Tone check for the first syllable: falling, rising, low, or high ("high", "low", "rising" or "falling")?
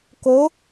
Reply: rising